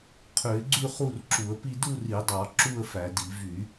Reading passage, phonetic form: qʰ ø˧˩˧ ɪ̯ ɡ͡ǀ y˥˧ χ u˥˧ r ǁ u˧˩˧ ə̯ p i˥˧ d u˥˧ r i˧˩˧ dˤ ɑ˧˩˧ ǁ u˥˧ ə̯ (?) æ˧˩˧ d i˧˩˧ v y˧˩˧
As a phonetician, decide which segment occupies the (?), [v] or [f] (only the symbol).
f